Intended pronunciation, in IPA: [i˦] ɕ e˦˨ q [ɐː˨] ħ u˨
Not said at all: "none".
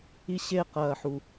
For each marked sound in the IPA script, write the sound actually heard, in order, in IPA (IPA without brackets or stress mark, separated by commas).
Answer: i˦, ɐː˨